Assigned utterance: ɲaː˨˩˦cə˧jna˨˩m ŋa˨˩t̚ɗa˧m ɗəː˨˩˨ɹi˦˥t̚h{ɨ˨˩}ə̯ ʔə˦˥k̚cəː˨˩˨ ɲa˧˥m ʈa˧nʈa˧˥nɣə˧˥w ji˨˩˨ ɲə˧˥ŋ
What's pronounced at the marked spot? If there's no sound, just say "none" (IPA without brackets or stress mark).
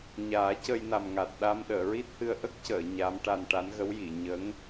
ɨ˧